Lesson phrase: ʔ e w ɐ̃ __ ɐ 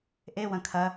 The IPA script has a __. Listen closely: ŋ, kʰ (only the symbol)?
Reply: kʰ